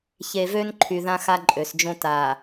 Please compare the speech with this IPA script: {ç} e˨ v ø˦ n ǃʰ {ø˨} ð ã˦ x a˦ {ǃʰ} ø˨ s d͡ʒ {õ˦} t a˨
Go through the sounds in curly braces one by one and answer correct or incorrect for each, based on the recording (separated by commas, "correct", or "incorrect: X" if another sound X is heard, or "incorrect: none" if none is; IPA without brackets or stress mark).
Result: correct, incorrect: y˨, incorrect: ǃʼ, correct